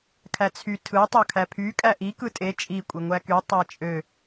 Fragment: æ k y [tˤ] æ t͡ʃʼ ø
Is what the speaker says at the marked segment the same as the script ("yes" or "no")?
yes